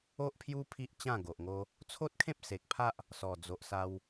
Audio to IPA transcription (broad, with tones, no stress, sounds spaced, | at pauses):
o˦ ʔ pʰ j u˦ pʰ i˦ ʔ t͡ɕ ã˥˧ ɡ o˨ ʔ ŋ o˦ | t͡sʰ o˦ t̚ kʰ ẽ˦ p̚ s e˨ k̚ pʰ a˦ ʔ | s ɔ˨˩ d͡z o˨ ʔ s a˧ w